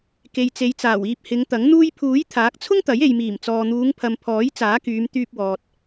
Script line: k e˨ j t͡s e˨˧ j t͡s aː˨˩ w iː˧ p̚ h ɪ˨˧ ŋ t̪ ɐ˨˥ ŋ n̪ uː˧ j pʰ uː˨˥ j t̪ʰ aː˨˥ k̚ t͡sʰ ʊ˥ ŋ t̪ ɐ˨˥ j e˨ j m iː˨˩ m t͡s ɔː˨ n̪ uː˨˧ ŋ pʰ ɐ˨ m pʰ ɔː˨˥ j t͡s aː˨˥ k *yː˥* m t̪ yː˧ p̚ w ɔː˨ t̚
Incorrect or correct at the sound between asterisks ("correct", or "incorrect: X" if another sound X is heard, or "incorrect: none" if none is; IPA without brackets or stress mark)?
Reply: incorrect: yː˨˧